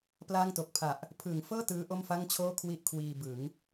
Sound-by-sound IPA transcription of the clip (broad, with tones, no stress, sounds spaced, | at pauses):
p l aː˥˩ ŋ t o˨˩ k̚ pʰ a˨˩ ʔ | pʰ ɯː˩˦ ŋ f ɤː˥˩ t ɯː˦˥ ʔ o˥˩ m f a˥˩ ŋ t͡ɕʰ oː˥˩ kʰ w i˥˩ ʔ kʰ w iː˧ b ɯ˩˦ ŋ